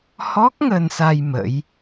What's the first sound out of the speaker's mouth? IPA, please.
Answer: h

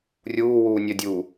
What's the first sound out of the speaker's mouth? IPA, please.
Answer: rʲ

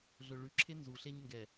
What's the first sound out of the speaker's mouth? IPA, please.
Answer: ɮ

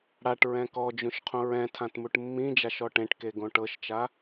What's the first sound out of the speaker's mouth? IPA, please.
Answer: ɽ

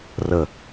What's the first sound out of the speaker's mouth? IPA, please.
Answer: r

